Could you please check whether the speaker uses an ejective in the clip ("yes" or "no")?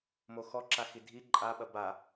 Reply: yes